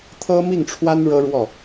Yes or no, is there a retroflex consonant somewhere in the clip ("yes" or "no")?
yes